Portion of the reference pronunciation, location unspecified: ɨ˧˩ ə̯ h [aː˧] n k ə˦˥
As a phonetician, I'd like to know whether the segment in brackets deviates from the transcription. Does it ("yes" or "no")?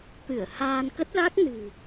no